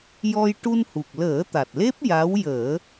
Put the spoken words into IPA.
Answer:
j ɔ˧ j ʈ u˧ n h u˨˩ k̚ l əː˨˩˦ t̪ a˨˩ t̚ l e˦˥ p̚ j a˧˥ w j əː˨˩˦

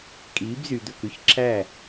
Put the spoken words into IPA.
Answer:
kʼ iː˨˦ b z y˨ d̪ ɵ˦˨ k ʉ˦ ç ǁʰ æ˦˨

